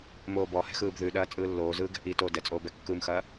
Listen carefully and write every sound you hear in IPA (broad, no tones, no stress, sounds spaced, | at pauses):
m oː b ɔ h ɛ̤ x ɯː b ð ʉ ɗ ɐː t͡sʼ ɯː lː oː z ɯː ɡ ɛ̤ ʔ i t oː d ɛ t͡sʼ oː b ɛ kː ɯ m x ɐː